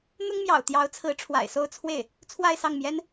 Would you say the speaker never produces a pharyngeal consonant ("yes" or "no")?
yes